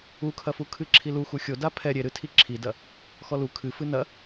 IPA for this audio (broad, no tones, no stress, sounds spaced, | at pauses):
u kʰ ɐ f u kʰ ɨ ǁʰ i l u x u xʲ o d a pʰ ɛ ɾʲ e ɾ ɨ tʰ i ǁʰ i d ɐ | x ɔ l u kʰ ɨ f ɨ n ɐ